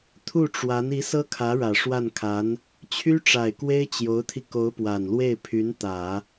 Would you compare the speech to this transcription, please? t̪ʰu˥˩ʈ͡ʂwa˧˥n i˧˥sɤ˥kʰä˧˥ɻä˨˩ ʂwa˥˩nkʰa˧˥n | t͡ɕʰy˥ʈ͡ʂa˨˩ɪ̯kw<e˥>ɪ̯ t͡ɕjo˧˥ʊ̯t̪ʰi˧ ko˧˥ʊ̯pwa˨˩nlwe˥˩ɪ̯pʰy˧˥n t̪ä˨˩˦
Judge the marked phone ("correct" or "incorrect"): correct